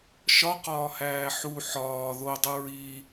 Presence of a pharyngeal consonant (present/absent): present